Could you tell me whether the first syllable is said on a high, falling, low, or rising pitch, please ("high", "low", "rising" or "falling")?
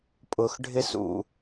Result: low